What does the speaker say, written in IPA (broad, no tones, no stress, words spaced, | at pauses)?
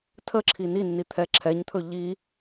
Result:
tʰəǁʰi ninːi t̪ʰɛǁʰɛɲt̪ʰɵ ʎi